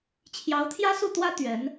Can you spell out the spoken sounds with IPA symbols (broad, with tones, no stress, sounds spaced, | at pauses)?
t͡ɕʰ j ɑ˧˥ ʊ̯ t̪ʰ j ä˥ s u˥˩ t̪ w ä˥ t̪ ɥ ɛ˧˥ n